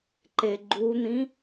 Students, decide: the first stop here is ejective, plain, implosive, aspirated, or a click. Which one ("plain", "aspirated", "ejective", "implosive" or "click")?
click